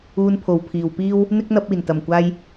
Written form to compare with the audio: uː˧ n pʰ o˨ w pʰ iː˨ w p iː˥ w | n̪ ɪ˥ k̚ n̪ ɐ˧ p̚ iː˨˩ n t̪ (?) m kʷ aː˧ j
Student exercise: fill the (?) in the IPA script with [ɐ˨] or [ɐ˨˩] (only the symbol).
ɐ˨˩